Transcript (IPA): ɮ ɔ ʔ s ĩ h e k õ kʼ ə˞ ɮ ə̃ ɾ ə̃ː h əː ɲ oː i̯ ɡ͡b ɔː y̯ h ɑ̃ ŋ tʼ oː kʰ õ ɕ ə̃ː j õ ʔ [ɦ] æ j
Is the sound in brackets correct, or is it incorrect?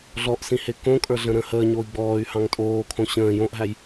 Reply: correct